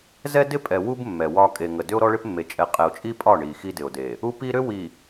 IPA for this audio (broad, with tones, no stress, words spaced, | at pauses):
zɛ˦dɪ˦pʼɛ˨ wu˦b mːɛ˨wɒ˦ kʼe˨ŋə˨ dʏ˦o̯ɾɔ˦ɭɪ˦pmːe˨ t͡ʃʼɛ˨qʼɛ˨o̯t͡ʃʼi˦pʼɒ˦˨ ɳi˨ xi˦dɪ˨o̯de˨ | u˦pi˦ɾʏ˦ wi˨